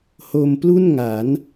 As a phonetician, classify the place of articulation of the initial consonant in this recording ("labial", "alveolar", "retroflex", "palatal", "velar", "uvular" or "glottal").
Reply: glottal